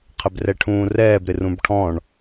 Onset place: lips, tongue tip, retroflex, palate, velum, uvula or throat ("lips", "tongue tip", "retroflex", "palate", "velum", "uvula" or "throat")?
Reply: uvula